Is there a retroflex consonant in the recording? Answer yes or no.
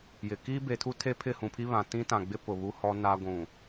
no